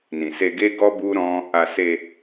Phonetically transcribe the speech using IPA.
nĩ˨se˧ɡe˦ɡɔ˦ bu˦ɾɔ̃˦ | a˧ se˧

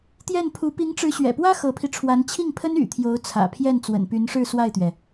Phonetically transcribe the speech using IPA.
t̪jɛ˥˩npʰu˧˥ pi˧˥ŋʈ͡ʂɻ̩˧˥ɕɥɛ̰˨˩pwä˥ xɤ˧˥pʰi˧ʈ͡ʂʰwa˧˥n t͡ɕʰi˥˩ŋpʰə˥n y̰˨˩t̪ʰjo˧˥ʊ̯ t͡sʰä̰˨˩pʰjɛ˥˩n t͡swə̰˨˩npy˧˥nʂɻ̩˥˧ swa˥˩ɪ̯t̪ɥɛ˩

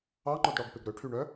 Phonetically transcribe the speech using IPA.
ɑŋ͡ǃɔdɽɔɡpeɡ ɾɵʈʰyɳœ

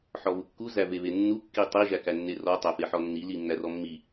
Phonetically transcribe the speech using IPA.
ħɔβukːu zæveβenːu kːitˤi ʒækænːerɔ tˤæfeħɔnːi linːærɔmːi

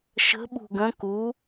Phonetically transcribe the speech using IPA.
ʃə̤ ɓṳɡə̃ ku

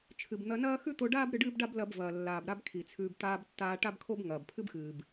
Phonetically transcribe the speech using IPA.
t͡ʃʰɨ˩bn̪ɐ˧nɐː˥ xʉ˥t̪o˧ɖaː˥b ɾɨ˧ɖɨː˥bɖa˥b lɐ˧b vɐː˩lːaː˩b ɾa˥bkʰi˩t͡sʰʉː˧b t̪aː˧b tːaː˧ʈa˥bkʰo˥b ŋɐː˩bpʰɨ˥bxɨː˩b

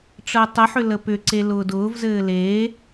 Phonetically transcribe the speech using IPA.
ʈ͡ʂəːtˤəħʏ ləpʏǀe lʊːdʊːvzɘː le

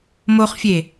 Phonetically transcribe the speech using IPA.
moχfʲe

